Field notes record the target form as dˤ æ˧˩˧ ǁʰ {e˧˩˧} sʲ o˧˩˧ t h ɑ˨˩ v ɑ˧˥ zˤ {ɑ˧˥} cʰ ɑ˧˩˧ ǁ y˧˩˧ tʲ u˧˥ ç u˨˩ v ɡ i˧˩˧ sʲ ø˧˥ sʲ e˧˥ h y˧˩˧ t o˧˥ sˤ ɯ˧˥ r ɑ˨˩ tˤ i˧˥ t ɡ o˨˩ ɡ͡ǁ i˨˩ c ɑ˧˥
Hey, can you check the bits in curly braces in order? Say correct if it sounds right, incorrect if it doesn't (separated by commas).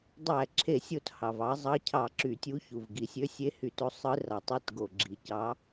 correct, correct